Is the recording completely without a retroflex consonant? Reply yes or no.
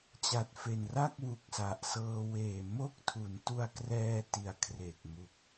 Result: yes